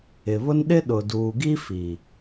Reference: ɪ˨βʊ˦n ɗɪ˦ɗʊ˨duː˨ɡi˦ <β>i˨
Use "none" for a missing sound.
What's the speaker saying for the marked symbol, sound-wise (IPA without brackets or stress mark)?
f